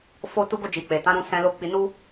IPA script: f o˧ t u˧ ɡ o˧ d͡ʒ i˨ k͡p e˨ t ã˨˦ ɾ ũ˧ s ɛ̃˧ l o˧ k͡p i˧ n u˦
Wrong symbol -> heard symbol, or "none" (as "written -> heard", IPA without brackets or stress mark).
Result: none